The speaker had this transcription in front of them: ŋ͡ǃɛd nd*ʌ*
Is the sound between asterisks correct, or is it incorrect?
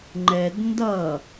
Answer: correct